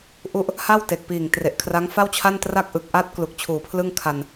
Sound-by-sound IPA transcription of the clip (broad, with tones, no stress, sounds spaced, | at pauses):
ʔ u˥˩ ʔ | h a˥˩ w t e˨˩ k̚ p iː˨˩ ŋ t r e˨˩ ʔ kʰ r a˦˥ ŋ f a˥˩ w t͡ɕʰ a˥˩ n t r a˥˩ k̚ ʔ ɯ˨˩ k̚ ʔ a˦˥ t̚ k l u˨˩ k̚ t͡ɕʰ uː˨˩ pʰ l ɯ˥˩ ŋ kʰ a˧ n